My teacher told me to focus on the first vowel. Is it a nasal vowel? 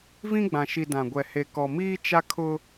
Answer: yes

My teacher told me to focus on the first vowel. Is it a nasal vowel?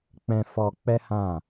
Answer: yes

